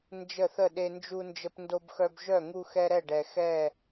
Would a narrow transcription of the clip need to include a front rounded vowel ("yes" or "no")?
yes